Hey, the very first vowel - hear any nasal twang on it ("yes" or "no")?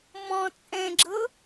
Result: yes